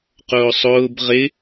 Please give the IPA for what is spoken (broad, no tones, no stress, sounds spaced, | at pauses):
q ʊː sˤ ʊː b ʁ ɪ